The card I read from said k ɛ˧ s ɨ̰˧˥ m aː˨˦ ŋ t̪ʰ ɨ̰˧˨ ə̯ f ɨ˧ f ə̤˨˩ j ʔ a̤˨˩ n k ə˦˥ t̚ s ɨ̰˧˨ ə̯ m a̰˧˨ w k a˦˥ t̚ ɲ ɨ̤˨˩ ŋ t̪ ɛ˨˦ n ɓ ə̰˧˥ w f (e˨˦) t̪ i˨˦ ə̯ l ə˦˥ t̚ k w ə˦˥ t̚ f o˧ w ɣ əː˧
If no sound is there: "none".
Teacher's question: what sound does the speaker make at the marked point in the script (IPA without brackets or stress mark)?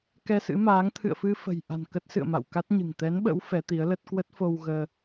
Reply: ɛ˨˦